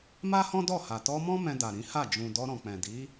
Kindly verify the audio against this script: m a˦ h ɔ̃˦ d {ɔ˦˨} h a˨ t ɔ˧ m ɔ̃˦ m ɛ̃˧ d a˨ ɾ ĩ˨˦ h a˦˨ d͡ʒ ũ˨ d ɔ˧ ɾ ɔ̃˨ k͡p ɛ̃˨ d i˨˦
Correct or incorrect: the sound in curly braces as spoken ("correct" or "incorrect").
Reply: correct